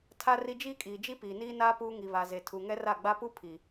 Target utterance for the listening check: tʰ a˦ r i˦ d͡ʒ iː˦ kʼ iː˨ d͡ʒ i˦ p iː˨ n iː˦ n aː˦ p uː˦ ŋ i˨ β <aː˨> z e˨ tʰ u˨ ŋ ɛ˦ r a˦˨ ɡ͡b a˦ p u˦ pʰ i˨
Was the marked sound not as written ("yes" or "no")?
yes